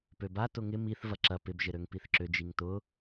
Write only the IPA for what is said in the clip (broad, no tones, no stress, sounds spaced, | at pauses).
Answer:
p ø b a t ʊ ŋ ɪ m i θ v ɐ ǁ ɐ p ɪ b ʒ ɪ ɾ ø ŋ p i θ ǁ ʏ d͡ʒ i ŋ t ʊ